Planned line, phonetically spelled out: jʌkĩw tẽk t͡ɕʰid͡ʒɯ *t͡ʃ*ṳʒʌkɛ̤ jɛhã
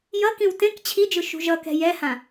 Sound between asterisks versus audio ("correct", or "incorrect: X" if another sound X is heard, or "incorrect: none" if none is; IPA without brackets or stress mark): incorrect: ʃ